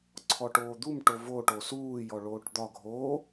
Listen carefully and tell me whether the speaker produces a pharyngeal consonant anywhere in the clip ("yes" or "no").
no